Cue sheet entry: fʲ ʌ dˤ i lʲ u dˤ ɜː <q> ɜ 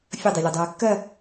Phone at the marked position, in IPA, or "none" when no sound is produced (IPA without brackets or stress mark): kː